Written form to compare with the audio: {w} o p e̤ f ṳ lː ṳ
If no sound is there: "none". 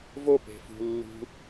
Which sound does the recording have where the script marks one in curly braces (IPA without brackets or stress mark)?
v